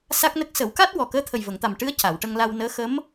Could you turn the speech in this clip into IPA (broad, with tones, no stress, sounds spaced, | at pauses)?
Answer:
s a˦˥ k̚ n ə˦˥ k̚ s ə˨˩˦ w k a˦˥ t̚ w ɔ˨˩ k əː˧˥ t̪ʰ ə˨˩ j v ə˨˩˨ ŋ t̪ a˨˩ m ʈ ɨ˧˥ ə̯ c a˨˩˨ w ʈ ə˧ ŋ l a˧ w n əː˧˥ x ə˧˥ m